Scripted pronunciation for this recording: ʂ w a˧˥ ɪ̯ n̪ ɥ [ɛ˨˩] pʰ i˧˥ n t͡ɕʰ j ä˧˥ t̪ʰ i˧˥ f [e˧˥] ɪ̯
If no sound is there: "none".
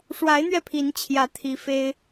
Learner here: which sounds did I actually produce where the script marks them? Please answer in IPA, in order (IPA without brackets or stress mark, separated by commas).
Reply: ɛ˧, e˥